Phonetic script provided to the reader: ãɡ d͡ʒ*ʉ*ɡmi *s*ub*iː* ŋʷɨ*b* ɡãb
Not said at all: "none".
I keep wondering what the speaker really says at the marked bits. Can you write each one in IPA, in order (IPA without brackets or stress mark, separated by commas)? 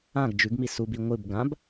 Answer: ʉ, s, i, b